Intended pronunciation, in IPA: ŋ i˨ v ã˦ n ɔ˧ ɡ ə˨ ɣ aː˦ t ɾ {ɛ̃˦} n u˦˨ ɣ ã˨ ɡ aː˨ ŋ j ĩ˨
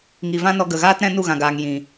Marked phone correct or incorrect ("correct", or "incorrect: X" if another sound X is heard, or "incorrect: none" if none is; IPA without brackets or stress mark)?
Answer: correct